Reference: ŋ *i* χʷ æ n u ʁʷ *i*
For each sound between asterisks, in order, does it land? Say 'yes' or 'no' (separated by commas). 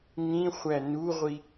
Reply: no, yes